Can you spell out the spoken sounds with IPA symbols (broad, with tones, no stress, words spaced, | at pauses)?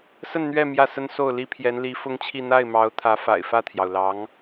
sə˥˧nn̪ɥɛ˥˧ mjä˥˩sə˥nso˥˩ʊ̯li˥ pʰjɛ˧˥nli˧˥ fʊ˥ŋt͡ɕʰi˥˧ n̪a˥˩ɪ̯mɑ˧˥ʊ̯t̪ʰä˧˥fa̰˨˩ɪ̯ fä˥˩t̪ʰjɑ˩ʊ̯lɑ˧˥ŋ